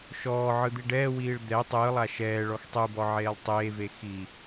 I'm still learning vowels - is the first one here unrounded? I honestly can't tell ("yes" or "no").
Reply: no